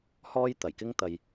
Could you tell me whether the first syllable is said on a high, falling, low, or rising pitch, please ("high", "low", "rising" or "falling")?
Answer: high